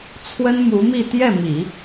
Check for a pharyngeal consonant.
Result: absent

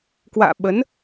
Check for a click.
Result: absent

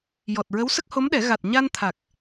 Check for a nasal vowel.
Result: absent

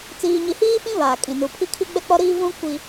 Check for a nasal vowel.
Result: present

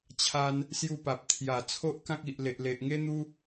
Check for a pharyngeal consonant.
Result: absent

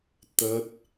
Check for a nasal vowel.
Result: absent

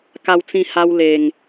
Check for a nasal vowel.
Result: present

